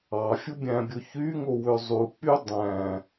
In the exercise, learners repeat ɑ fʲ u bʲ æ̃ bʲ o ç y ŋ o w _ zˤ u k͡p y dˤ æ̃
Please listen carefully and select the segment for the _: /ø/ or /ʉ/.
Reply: ø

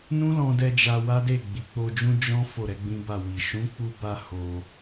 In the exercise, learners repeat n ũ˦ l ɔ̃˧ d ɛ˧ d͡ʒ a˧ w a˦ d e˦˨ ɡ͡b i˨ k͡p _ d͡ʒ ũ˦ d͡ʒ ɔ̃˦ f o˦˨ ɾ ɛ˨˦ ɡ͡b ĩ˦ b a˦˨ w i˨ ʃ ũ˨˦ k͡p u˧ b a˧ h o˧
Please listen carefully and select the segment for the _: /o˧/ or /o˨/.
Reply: o˧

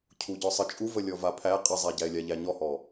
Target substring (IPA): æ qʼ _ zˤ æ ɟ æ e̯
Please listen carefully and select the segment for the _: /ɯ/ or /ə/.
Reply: ɯ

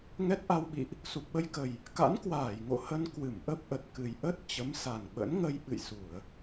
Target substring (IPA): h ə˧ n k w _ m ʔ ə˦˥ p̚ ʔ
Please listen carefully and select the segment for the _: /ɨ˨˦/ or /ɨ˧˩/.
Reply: ɨ˧˩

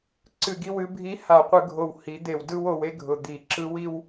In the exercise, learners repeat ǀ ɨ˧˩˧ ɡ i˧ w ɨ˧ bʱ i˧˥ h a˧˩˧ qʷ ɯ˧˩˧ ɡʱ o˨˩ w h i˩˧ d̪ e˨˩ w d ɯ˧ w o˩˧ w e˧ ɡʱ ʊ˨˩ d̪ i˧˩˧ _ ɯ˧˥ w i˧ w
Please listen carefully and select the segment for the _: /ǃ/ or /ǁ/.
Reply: ǁ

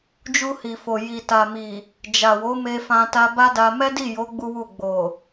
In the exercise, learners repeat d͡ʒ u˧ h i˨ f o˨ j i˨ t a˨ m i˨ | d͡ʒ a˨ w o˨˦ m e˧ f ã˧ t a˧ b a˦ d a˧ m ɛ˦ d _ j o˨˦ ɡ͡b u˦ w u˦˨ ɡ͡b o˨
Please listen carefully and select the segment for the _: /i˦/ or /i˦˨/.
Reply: i˦˨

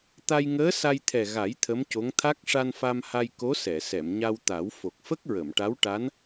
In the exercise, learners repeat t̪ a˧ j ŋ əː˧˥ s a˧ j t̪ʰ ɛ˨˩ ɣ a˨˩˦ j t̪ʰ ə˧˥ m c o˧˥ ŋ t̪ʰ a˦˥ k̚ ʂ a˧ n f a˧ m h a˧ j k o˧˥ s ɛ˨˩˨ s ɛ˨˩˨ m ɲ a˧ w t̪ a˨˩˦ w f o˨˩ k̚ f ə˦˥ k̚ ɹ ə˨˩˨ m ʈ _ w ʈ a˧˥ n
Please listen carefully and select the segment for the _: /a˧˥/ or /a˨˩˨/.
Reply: a˧˥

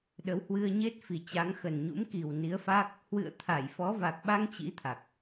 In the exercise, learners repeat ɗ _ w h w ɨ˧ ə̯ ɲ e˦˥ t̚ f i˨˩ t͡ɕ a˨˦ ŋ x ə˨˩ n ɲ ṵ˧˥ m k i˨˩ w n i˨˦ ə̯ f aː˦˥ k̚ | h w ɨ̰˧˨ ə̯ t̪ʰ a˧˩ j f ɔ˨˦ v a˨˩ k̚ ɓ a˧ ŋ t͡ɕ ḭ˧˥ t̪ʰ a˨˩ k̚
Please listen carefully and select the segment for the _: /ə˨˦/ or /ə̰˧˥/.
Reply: ə˨˦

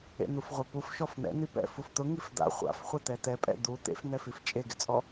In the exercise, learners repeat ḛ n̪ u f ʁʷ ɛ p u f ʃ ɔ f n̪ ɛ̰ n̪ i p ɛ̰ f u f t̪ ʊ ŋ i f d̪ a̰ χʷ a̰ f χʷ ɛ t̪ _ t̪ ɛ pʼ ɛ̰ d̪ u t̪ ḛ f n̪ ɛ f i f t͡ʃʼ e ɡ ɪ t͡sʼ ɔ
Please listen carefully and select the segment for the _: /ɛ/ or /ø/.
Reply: ɛ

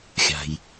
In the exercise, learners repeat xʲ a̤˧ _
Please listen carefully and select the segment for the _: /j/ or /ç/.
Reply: j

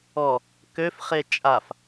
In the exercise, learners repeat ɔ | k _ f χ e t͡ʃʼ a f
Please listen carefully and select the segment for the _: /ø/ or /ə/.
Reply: ø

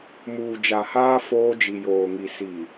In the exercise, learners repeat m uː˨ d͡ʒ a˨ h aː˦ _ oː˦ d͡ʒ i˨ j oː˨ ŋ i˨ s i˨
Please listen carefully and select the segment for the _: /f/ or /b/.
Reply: f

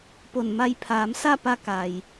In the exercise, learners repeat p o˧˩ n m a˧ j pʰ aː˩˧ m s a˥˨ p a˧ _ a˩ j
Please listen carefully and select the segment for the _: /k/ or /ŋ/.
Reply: k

